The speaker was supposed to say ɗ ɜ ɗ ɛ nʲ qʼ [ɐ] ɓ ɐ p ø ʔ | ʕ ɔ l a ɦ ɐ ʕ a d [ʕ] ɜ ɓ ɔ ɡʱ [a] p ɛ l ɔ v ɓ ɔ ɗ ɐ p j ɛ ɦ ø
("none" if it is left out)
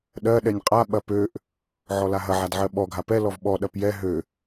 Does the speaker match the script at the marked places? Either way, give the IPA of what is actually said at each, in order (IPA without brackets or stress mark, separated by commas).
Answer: a, ʕ, a